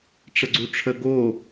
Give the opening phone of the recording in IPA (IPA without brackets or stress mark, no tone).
ʈ͡ʂ